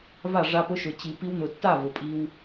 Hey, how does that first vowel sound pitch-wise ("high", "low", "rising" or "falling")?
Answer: falling